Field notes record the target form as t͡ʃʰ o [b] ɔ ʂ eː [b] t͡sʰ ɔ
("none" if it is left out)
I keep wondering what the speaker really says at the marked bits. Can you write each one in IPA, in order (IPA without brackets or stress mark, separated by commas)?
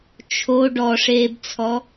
ɖ, b